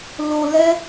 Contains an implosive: no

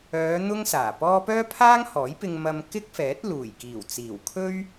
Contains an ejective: no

